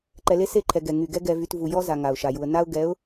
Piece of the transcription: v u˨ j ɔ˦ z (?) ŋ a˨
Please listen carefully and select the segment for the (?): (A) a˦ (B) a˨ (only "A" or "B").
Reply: B